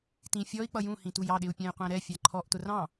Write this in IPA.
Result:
t ĩ fʲ ɔ i̯ k͡p ʌ j ũ h ĩ t u j ɑ ɗ ɪ u̯ pʲ æ̃ j qʷ æ̃ ɾ ɛ fʲ ɑ ǃʰ ɔ ʔ t ʊ r ɑ̃

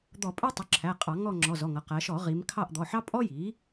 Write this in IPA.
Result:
d̪ ɔ˧˩˧ pʼ æ˥ tˤ ʊ˩˥ ǁʰ æ˩˧˩ qʼ ɑ˧˩˧ ŋ ɔ˦˨ ŋ͡ǁ ɔ˩˧˩ z ɔ˩˧˩ ŋ ʌ˩˧ q æ˩˧ ʃ ɔ˧˩˧ ʁ i˩˧ m kʰ ɑ˦˨ ʔ d̪ ɔ˩˧˩ ħ ɑ˥ pʼ ɔ˥ j i˩˥

